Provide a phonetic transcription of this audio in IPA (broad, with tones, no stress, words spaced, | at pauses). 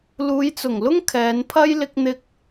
luː˨˧jt͡sʊ˨˩ŋlʊ˥ŋ kʰɛː˨˧npʰɐ˥j lɪ˥k̚n̪ɪ˥k̚